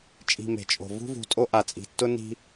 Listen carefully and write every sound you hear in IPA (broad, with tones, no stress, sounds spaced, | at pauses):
t͡ʃʼ i̤˨ m e̤˩ t͡ʃʼ o̤˩ v ṳ˥ v ṳ˨ tʼ o˦ ʔ a˩ t͡sʼ i̤˩ tː ʊ˥ n i̤˥